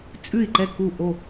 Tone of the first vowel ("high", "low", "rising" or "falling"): falling